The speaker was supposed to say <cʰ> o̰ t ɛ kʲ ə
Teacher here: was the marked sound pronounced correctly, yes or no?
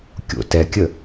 no